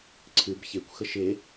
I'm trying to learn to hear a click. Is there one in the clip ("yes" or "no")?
yes